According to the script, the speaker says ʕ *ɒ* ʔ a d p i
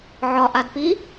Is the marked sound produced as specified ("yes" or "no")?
yes